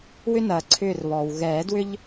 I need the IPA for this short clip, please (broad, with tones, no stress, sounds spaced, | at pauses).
w ʏ˦ n ɐː˩ ǀʰ ʏː˧˩ r β ɔː˩ w ɣ ɛː˨˩˦ d w ʏ˦ ʎ